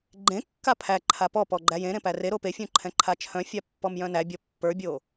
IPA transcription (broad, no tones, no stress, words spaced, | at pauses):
ɡ͡ǃẽkːa pʰæ ǃʰapɔpɔ ɡ͡ǃæjẽɾẽ pæreɾo pefʲũ ǃʰɛ̃ǃʰat͡ʃʰœ̃fʲa pːɔmjœ̃næbʲɔ pːə˞bʲo